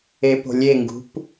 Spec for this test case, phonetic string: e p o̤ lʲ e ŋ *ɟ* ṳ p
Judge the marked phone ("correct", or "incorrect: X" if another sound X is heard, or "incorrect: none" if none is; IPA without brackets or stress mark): incorrect: ɡ